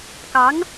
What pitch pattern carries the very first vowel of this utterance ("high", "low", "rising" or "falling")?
rising